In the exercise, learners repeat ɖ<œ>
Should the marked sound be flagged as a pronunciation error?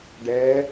yes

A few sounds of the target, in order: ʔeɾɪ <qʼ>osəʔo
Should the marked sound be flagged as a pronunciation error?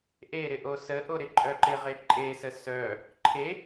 yes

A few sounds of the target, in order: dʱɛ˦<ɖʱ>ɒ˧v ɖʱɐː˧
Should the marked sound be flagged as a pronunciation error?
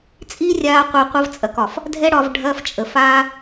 yes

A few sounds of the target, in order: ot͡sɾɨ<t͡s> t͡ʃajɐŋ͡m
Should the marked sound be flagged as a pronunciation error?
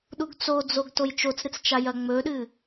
no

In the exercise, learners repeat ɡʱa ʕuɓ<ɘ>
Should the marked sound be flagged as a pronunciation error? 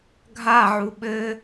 no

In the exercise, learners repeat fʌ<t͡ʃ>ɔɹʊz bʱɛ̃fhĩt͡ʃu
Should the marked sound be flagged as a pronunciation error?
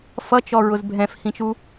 no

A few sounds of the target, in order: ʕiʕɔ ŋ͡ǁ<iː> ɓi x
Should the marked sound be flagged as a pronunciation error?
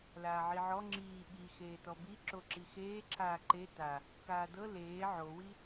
no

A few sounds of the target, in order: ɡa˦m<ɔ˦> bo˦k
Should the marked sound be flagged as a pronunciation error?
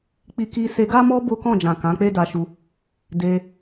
no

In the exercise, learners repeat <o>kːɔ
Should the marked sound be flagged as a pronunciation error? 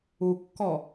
yes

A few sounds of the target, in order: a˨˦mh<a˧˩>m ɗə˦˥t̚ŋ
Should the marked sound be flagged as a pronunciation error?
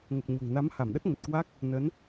no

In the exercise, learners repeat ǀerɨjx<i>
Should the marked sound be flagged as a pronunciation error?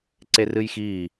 yes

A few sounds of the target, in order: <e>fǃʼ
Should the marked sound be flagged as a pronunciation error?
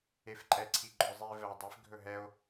no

